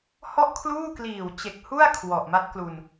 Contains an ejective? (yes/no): no